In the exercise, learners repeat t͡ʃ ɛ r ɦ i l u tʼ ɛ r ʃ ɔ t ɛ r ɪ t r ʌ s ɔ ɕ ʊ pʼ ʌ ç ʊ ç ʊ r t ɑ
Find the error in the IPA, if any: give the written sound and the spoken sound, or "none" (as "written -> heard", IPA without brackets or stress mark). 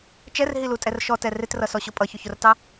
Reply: none